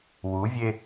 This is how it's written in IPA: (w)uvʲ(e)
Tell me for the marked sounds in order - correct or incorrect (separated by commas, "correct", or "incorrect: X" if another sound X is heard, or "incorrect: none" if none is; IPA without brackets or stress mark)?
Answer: correct, correct